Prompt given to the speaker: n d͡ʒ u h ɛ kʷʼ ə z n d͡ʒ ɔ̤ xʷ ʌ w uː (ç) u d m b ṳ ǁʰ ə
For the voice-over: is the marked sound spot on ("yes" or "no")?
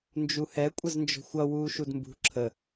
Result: no